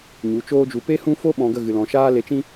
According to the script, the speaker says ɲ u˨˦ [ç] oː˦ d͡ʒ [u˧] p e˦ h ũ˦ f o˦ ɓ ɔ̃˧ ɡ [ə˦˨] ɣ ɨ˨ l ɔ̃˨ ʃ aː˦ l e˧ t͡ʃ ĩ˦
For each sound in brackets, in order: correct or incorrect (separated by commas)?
incorrect, correct, correct